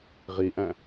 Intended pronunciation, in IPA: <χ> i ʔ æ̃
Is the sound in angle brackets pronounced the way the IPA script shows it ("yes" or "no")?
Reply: no